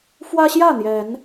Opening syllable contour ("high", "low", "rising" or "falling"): high